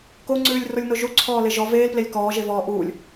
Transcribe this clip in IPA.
k o ŋ͡ǀ ʉː lʲ r o lʲ n o ʒ u ǀʰ ɔː l e ʒ ɔ v eː l p l e lʲ k ɔː ʒ e v ɔː ʔ uː lʲ

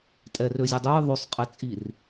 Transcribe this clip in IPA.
tʼ ɛ r ø zʲ o dˤ œ j ðˤ ø sˤ qʼ ɛ t͡sʼ i r

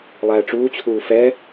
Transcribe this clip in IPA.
lˠ æː ʈ͡ʂ uː t͡ɕʰ uː f ɛ

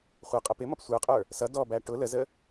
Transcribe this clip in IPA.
χʷ ʌ qʼ ʌ p ɪ m ʌ p sʷ ə˞ qʼ ə˞ | s ʌ d ɔ b æ ʈ ʊ l ə z ə

